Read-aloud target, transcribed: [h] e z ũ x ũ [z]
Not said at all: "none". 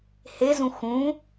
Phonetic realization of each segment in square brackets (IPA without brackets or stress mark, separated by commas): h, none